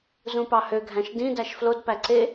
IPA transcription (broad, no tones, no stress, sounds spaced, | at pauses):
z ũ p ɑ h ø ɡʱ æ̃ ʃ d ĩ d æ ʃ f l o d p æ ǀ e